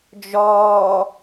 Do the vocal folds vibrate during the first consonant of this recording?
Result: yes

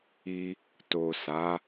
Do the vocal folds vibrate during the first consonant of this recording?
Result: no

